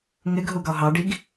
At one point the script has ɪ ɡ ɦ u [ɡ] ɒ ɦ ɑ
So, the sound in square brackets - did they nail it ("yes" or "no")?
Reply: yes